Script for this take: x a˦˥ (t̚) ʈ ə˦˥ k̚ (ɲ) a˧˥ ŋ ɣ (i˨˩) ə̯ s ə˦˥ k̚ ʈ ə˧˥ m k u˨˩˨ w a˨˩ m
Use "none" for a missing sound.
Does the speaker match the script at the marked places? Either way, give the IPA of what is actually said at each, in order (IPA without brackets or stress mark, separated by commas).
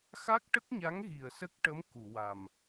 k̚, ɲ, i˨˩